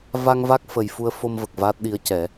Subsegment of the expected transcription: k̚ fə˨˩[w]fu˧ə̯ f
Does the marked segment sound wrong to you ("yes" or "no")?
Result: yes